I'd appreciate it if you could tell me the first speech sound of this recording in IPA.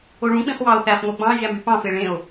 o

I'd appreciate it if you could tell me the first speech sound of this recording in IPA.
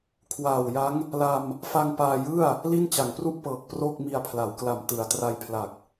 kʰ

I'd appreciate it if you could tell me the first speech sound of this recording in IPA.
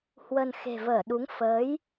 h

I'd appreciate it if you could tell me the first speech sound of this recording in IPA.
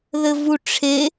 ð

